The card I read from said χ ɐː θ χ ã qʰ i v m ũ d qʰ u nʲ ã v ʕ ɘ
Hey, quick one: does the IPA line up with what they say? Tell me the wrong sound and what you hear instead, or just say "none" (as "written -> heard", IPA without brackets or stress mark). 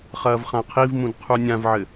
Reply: θ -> v